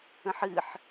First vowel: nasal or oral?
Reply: nasal